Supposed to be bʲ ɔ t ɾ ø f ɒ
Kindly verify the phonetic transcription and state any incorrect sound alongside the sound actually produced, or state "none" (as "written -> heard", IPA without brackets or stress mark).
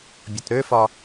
none